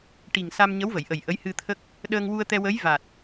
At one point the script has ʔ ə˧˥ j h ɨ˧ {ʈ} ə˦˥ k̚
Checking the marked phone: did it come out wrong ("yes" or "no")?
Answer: yes